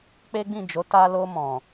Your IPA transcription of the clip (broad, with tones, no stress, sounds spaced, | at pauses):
k͡p e˦ ɡ͡b ĩ˦˨ d͡ʒ o˨˦ t a˧ l o˧ m ɔ̃˨